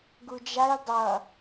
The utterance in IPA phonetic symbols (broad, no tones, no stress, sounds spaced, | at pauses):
ɡ u d͡ʒ a j dˤ ʌ